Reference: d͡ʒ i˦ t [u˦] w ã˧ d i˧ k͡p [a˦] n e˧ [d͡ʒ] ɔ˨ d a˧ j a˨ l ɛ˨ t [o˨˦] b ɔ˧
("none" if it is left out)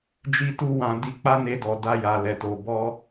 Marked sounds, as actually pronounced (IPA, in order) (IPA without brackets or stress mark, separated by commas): u˦, a˦, d, o˨